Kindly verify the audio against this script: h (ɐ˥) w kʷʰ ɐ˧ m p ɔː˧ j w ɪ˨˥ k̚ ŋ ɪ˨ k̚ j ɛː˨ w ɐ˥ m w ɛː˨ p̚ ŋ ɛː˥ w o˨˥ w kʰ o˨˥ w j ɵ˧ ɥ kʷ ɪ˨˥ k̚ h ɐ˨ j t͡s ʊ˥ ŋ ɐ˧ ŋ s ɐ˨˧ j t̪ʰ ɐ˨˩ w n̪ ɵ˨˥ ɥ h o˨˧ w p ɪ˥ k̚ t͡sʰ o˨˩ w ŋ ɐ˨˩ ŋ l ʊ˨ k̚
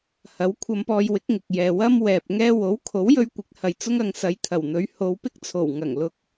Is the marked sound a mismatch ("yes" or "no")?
yes